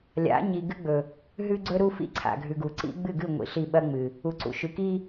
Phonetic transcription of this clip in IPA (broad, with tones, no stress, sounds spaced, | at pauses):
lʲ a̰˨˦ ɲ i˨ ɡ ɨ˦ ɡ͡b ɵ˨ | ɦ ʉ˦ ɡ͡ǀ ɵ˦ ɾ u˦ f ḭ˦ ǀʰ a̰˨ ɡʱ ʉ˨ ɡ u˨ ǀ ḭ˦ ɡ͡b ɨ˦˨ ɡ ɨ˦˨ ŋʷ ḭ˨ ɬ i˦˨ ɓ ɐ˦ ŋ͡m ɨ˨ | u˨ ǀ ṵ˨ ʃ ʉ˨ k i˦